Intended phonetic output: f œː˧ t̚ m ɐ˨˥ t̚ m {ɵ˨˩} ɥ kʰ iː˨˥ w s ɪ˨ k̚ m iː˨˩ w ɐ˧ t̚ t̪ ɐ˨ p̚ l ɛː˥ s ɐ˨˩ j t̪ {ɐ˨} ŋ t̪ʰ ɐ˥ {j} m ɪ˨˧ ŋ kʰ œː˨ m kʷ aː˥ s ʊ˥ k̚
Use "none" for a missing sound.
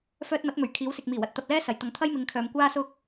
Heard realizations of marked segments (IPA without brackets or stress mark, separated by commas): ɵ˨˩, ɐ˨, j